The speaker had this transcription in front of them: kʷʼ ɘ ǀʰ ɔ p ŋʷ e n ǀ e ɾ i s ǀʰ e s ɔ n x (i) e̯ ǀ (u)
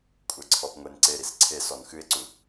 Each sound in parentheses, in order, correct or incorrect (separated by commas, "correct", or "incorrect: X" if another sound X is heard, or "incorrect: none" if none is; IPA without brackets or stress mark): incorrect: ɨ, correct